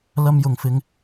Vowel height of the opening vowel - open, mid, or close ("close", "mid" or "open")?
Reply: open